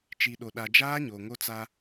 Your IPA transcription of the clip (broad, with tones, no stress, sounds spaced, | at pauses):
t͡ʃ i˨ ɗ o˨ ɗ a˨ d͡ʒ aː˦ ɲ o˨ ŋ o˦ t͡s a˦